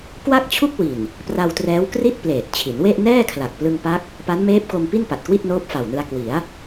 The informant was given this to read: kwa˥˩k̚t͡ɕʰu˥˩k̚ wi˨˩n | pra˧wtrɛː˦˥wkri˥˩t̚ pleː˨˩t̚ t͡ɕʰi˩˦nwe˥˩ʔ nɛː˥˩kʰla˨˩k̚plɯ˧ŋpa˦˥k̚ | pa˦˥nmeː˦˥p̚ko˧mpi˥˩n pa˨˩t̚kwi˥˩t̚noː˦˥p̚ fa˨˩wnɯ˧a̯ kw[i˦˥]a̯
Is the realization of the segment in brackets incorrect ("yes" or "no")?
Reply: yes